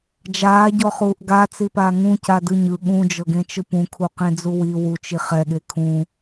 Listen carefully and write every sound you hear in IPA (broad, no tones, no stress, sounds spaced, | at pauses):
d͡ʒ aː ɟ ɔ χ uː ʔ ɡ a t͡s i p aː ŋ ũ c a d ɯ ɲ ɯ ɠ ũ d͡ʒ ɤ ɡ ẽ t͡ʃ ɯ p ũ kʰ u q ẽ d͡z u w i w u t͡ʃ i χ ɛ ɠ e kʰ ũ